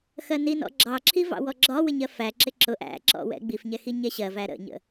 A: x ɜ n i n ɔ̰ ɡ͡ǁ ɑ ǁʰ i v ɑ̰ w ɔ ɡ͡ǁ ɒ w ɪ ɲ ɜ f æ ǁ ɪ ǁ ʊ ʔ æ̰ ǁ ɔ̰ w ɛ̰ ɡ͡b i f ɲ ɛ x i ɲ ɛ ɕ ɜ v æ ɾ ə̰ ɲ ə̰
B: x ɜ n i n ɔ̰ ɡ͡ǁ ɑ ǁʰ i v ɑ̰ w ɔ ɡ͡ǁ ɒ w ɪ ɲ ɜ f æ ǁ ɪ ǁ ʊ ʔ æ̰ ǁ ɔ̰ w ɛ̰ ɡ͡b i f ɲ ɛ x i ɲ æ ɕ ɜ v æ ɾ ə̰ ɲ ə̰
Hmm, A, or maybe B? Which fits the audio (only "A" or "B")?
A